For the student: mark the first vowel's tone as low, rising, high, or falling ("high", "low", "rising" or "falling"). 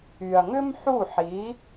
low